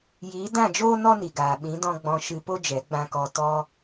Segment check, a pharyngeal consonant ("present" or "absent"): absent